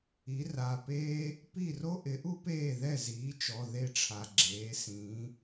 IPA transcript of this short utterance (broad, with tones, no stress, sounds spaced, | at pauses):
i˩˥ r a˩˧˩ p eː˥ | p i˥˩ r o˥ ʔ ɪ˩˥ ʔ u˥ p eː˥˩ ð ɛ˥˩ z iː˩˥ t͡ʃ ɔ˩˧˩ ð e˥˩ ʈ͡ʂʰ a˩ ɡ͡ǁ eː˩˥ s ĩː˩˥